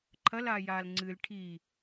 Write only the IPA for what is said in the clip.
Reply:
ǃʰɐlaː jaːlŋ͡ǀɨːl ʈʰi

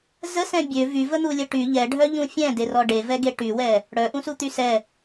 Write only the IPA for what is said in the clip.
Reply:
zəsɛ̃ bʲø vyvən̪ulʲə ʈy ʎɛɖʱœʎũ fʲɛ̃derɔ ɖevɛɡe ʈywɛ | ɽœʔũsut̪y sɛ

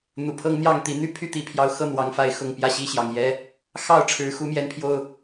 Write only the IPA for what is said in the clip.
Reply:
n̪u˨˩pʰɤ˦ŋ n̪jɑ˥˨ŋt̪i˨˦n̪y˦ pʰy˦t̪i˨˦pʰjɑ˨˦ʊ̯ xɤ˥˨n̪wɑ˨˦ŋfa˨˦ɪ̯ xʊ˨˩ŋpjä˥˨ɕi˥˨ ɕjɑ˨˩ŋjɛ˦ | xɑ˥˨ʊ̯ʈ͡ʂʰɻ̩˨˦xu˨˦ mjɛ˨˦npʰjo˨˩ʊ̯

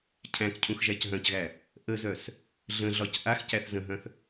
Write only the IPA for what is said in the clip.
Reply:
cʰæ̃k cʰũxʒæcɦœ̃cɣæ | ʔəzœs | ɮə̃ɮɒc ʔax cæθzə̃ɦœ̃θ

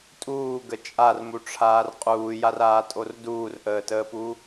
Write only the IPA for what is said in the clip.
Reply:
tʼuːɡə t͡ʃʼarmuʈ͡ʂʰaːr qʼuːjaraːtʼor duːrʔəːtəːpu

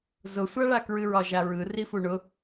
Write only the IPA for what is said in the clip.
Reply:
zʊsʷaɭa kɹɨɹɒʒaɹɯ rifuɳʊ

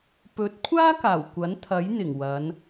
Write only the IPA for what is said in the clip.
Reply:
pɵ˨˥t̚kʷʰaː˥ kaː˨˩wkʷɐ˨˥nt̪ʰɐ˨˥j n̪ɪ˨˩ŋwɐ˨˧n

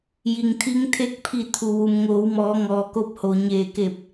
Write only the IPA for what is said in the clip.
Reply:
ji˩ŋt̪ʰi˧ŋt̪ʰe˧˥k̚pʰi˧˩ t̪ʰu˩ ʋu˩mŋoː˩˧wmɔː˩˧ŋɔː˩ ko˧p̚ho˩ɲeː˧˩ke˧˩p̚

